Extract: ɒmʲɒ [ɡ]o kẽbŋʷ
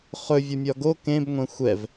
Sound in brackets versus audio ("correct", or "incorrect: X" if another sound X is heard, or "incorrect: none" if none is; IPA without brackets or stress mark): correct